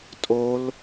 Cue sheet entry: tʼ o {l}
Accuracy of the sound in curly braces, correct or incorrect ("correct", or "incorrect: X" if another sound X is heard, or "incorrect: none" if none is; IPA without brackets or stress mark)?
correct